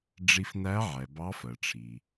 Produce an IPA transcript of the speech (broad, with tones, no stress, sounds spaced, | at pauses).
ɖ͡ʐ i˧ f n æ˧˥ ʕ ɛ˩ b ɑ˧˥ f ɜ˩ ʈ͡ʂʰ i˩